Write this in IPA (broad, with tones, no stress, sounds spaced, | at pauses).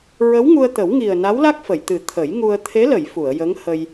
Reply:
ɹ ə˧˥ w ŋ u˧ ə̯ t̪ ə˨˩˦ w ŋ i˨˩ ə̯ n a˧˥ w l a˦˥ k̚ f ə˨˩˨ j t̪ ɨ˨˩˦ t̪ʰ ə˨˩˦ j ŋ u˧ ə̯ t̪ʰ e˧˥ l ə˨˩˨ j f u˨˩˨ ə̯ j ə˧˥ ŋ h ə˧ j